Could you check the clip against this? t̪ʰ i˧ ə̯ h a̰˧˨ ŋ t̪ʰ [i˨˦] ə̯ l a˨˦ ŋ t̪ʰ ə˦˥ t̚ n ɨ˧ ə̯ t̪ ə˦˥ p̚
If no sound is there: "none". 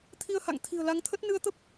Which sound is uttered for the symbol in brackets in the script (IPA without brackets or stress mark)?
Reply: i̤˨˩